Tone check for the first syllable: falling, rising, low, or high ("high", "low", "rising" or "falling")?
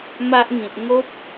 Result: high